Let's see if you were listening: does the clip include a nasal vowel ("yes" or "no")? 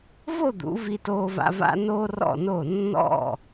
no